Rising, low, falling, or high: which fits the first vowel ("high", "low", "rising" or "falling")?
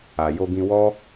low